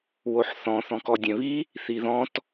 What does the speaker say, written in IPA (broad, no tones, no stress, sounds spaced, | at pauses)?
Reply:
w o ħ θ ɔ̃ θ ɔ̃ k ɔ dʲ ɛ̃ β i | θ i ð ɔ̃ t